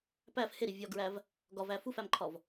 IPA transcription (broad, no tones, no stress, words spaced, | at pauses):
pæf heɾi vʲɒɡɹæv | ɡɒvæ fufæmǃʰɒv